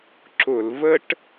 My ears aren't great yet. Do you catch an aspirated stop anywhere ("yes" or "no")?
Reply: no